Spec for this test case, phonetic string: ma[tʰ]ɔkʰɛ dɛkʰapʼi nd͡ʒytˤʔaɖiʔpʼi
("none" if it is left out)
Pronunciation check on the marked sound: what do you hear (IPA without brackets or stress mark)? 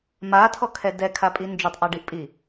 tʰ